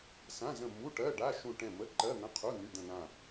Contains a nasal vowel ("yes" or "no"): yes